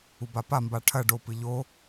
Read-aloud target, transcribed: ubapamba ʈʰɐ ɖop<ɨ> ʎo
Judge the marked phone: correct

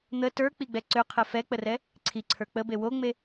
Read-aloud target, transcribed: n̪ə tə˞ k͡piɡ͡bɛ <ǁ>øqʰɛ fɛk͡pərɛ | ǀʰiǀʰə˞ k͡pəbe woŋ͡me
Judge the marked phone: incorrect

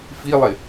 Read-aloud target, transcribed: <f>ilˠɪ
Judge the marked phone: correct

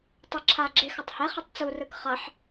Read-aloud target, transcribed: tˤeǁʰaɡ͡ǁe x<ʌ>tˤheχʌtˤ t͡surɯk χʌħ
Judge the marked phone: correct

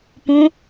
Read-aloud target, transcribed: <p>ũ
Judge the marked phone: correct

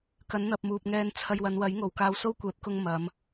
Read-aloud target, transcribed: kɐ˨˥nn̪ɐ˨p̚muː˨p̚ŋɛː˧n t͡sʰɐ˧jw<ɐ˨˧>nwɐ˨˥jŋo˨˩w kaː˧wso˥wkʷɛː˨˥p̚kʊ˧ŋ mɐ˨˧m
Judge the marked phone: correct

